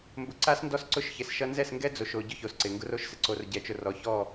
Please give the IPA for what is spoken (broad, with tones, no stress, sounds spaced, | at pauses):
m b ʊ˨ ǀ a˦ s n d ɔ˦ s ǀ ʊ˦ ʃ ç ɪ˨ s ʃ ʌ˦ n z ɛ˦˨ s ŋ ɡ ɛ˦ d͡z o˨ ʃ o˨ ɟ ʊ˦ ç o˨ s ǀ ɪ˨ ŋ ɡ ʊ˦ r o˦ ʃ s ɪ˨ ǀ o˨ r ɟ ɛ˨ t͡ʃ ʊ˨ r ɔ˨ ç ɔ˦˨